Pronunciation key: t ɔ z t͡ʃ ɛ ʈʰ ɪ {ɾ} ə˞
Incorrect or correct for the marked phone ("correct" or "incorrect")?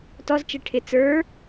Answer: incorrect